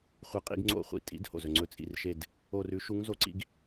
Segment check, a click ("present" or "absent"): present